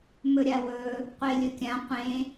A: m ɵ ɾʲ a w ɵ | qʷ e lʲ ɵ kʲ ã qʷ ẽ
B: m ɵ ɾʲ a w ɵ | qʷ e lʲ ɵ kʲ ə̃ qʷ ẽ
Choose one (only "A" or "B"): A